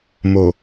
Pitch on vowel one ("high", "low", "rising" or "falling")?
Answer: low